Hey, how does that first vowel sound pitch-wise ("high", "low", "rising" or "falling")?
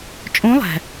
rising